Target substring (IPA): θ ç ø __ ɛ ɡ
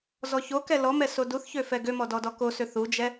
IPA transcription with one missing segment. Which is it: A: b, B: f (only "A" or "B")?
B